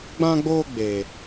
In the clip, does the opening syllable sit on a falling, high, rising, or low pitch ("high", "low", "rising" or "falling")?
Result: high